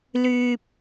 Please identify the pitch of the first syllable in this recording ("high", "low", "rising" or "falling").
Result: low